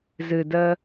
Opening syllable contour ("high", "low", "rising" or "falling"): low